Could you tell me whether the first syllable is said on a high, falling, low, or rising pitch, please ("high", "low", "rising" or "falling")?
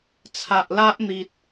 low